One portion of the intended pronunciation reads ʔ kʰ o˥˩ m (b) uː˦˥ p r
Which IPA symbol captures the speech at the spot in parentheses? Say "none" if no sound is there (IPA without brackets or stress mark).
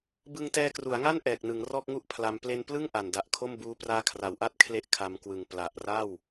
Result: b